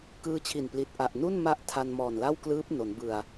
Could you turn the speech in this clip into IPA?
kɯː˦˥t͡ɕʰi˨˩n pli˨˩t̚ ʔa˨˩ʔnu˥˩nma˦˥ʔ tʰa˧nmɔː˨˩nla˥˩wklɯː˦˥p̚ no˩˦nbɯ˨˩a̯

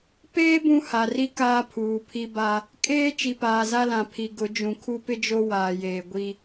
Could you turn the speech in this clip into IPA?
peː˦ bũ˦ha˨ri˦ kaː˦pʰuː˨pʰi˦ ba˦ | kʼeː˦ t͡ʃi˨paː˨za˦lã˨ pʰi˨ɡʊ˨˦d͡ʒũ˨ kʰu˦pɪ˦d͡ʒo˦ waː˨jeː˨ɡʷi˦

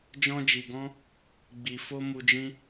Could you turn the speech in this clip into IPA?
d͡ʒɔ̃˧d͡ʒi˨ɡɔ̃˧ | ɡ͡bi˨fo˧ mu˧d͡ʒĩ˦

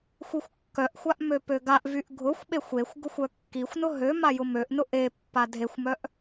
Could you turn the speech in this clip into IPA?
xʷixʷkːœʔxʷaʔ møpøɡaʔvyʔ ɡʱʊxʷɓexʷ exʷ ɡʊxʷœkːixʷnʊ ɦø majʊmøʔnʊ ʔe pːadʱexʷmœʔ

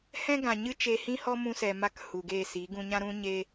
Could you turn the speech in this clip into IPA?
hɛ̃˦ ɡã˨ ɲɨ˧t͡ʃe˨hĩ˧ hɔ˦mũ˧sɛ˨ma˧k hu˨ɡe˦˨si˨˦ ɡũ˧ɲã˦ɾũ˦ ɲe˦

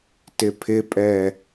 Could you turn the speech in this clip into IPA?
tɪpʰɪpʼɛ

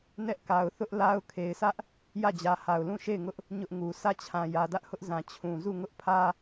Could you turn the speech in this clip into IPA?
nɛ˦ʔka˨ʊ̯ θʊ˦ʔla˦ʊ̯ kʰe˨ɪ̯sʰä˦ʔ | jä˦˨d͡ʑä˨ha˨ʊ̯lũ˦˨ ʃe˦˨ɪ̯ŋʊ˦ʔ | ɲʊ˦ʔŋu˨ sʰä˦˨t͡ɕʰã˨jä˨dä˦ʔ hʊ˦ʔzã˨ t͡ɕʰũ˨ zu˦˨ŋʊ˦ʔpʰä˦

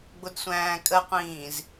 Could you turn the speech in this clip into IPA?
ɡ͡bʊdsʷæ̃ːkʼəqʷĩːz

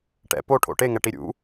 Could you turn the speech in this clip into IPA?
ʈɛ̰ poʈʰo̰ ʈeŋɛʈi ɾʲṵ

